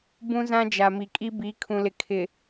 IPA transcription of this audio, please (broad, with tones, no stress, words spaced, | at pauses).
bũ˦zã˦d͡ʒa˨ mi˨kʼi˦ bi˨˦kʰũ˨lɪ˨ kʰɪ˨